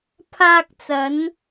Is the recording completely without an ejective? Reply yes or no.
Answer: yes